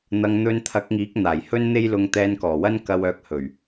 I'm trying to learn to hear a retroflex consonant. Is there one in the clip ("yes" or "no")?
no